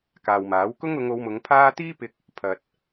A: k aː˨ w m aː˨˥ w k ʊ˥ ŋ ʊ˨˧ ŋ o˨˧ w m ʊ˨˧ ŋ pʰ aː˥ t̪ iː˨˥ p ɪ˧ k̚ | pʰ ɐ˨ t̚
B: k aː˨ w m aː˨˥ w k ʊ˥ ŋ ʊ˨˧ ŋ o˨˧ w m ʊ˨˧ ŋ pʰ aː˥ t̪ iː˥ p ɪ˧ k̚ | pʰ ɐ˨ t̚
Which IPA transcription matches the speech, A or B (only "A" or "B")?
B